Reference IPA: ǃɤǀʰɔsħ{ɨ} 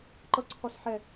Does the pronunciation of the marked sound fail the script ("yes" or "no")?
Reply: yes